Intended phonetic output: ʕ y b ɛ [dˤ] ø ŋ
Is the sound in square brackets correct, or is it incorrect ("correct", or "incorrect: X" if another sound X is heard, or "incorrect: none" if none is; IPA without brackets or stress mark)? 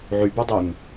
correct